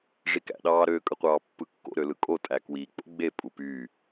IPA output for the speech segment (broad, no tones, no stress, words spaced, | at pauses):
ʐikæ̰ɗɑːɾø kʼɯqʷɑːpːɯkːo̰ ɾølɯkʼo tʼækwi k͡po̰ɡ͡be pʼupy